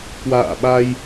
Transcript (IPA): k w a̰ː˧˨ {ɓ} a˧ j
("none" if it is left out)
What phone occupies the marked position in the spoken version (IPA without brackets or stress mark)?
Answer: ɓ